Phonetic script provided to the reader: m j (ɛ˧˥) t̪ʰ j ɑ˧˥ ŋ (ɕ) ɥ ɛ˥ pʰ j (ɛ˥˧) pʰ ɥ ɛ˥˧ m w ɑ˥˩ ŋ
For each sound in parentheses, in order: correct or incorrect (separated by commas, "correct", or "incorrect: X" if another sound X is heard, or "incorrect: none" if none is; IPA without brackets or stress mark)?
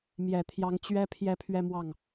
incorrect: ɛ˨˩, incorrect: t͡ɕ, correct